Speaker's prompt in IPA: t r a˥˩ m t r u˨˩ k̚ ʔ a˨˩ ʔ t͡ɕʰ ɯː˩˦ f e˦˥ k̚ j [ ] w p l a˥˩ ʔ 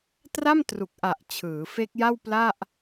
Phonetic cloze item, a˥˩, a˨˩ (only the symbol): a˥˩